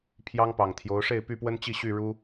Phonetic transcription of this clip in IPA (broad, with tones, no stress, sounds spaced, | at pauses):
pʰ j ɑ˦ ŋ p ɑ˨˩ ŋ t̪ʰ j o˨˦ ʊ̯ ʂ e˥˨ ɪ̯ p y˥˨ p w ə˦ n t͡ɕ i˥˨ ɕ y˥˨ ɻ u˦